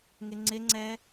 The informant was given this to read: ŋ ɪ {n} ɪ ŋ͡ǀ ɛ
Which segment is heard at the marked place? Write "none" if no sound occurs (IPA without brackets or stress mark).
ŋ͡ǀ